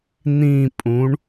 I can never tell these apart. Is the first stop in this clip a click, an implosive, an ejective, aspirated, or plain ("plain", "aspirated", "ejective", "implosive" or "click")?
ejective